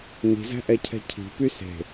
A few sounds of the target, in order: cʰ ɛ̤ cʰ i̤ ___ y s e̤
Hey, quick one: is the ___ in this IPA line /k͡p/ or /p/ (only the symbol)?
p